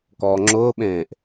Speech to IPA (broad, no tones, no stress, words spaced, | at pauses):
kɔːŋ͡ǁʊːɓẽːʔ